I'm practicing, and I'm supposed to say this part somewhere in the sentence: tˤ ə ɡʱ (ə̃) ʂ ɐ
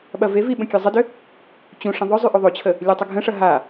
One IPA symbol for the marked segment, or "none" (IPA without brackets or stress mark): ə̃